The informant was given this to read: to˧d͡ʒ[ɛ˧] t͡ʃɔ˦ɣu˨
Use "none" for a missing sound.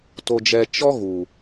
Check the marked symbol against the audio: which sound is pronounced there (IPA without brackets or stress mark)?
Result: ɛ˧